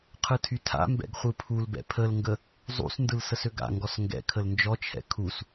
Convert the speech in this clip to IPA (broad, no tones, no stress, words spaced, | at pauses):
qʰɯtʰytʰa̰ mbɛ̰ɡχʷɯpʰulbɛ̰ pʰəlŋɡə | zˤṵsndɯl səsøɡa̰ŋɡɔs ŋɡɛ̰ kʰəlnd͡ʒɔt͡ʃʰɛ̰ kʰus